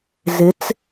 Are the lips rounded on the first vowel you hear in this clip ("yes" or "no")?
no